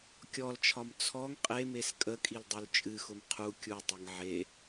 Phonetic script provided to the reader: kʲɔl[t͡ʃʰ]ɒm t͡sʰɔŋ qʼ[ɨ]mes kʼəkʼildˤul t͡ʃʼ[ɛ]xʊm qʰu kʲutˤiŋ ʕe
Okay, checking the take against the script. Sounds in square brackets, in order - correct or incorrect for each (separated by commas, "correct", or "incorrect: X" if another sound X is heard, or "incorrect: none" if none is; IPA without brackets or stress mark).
correct, incorrect: e, incorrect: ɨ